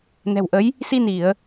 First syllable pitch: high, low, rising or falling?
low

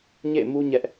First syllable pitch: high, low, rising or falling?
falling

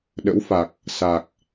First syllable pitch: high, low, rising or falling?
rising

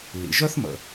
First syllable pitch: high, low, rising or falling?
low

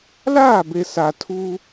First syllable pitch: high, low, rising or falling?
falling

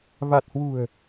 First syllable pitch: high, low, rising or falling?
low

